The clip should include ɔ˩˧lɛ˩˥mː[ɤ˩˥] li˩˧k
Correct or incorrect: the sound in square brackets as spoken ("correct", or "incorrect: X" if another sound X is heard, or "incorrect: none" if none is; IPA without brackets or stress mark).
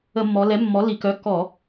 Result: incorrect: ɔ˩˥